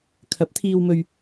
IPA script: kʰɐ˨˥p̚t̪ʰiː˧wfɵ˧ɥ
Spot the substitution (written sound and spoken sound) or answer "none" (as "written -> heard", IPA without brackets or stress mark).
f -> m